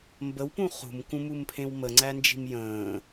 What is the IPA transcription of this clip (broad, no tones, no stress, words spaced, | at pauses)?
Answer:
mbəwpũ χṳmkũmumpʰẽw məŋ͡ǀænd͡ʒi̤m jə̃ː